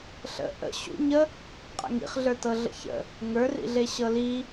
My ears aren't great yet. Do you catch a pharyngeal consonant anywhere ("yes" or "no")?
no